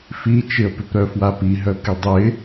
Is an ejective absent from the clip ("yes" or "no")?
yes